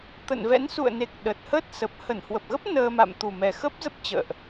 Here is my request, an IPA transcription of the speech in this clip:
t̪ ə̰˧˨ n v ɛ̰˧˥ n s ṵ˧˨ ə̯ n e˨˩ k̚ ɗ ə˨˩ t̚ h ə˦˥ t̚ s ə˨˩ p̚ h ə˧˩ n h w ə˨˩ p̚ ɣ ə˦˥ p̚ n əː˧ m a̰˧˨ m t̪ u˨˩ m ɛ˨˩ x ə˦˥ p̚ z ə˦˥ p̚ t͡ɕ ə̰ː˧˨ ʔ

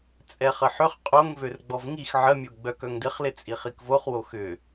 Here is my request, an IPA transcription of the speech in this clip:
t͡sʼ ɛ χ ə ħ ʏ χ qʼ o ŋ v ø r ɡ͡b ɔ v ŋ i x ʕ ə mʲ o ɡ͡b œ k œ ŋ d ɪ χ l ɪ t͡sʼ i χ i k v o χ w o x ʏ

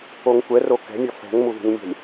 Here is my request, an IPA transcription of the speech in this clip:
o ŋ kʷ ɛ r o k ɛ̤ mʲ ʌ f ɛ̤ ŋ m u ð i̤ ŋ mʲ ɛ̤ lʲ

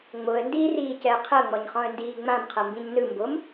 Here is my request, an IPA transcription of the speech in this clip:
ŋ͡m o ə̯ n d iː r iː c ɛ ə̯ qʰ ɤ ŋ͡m ɔ ɲ χ ɔ̃ ə̯ n d iː ŋ͡m ã m qʰ ɤ m b ĩ ɲ n ɯ m b o m

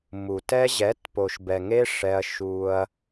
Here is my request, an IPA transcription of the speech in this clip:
m u˨ t ɛ˦ ʑ ɛ˨˦ t p o˨ ʃ b ɛ˨ ŋ e˦ ʂ ɛ˧ ɐ̯ ʃ u˧ ɐ̯

